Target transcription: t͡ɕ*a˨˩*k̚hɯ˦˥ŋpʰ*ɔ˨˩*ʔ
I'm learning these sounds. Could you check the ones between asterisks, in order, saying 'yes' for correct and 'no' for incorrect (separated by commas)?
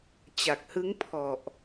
yes, yes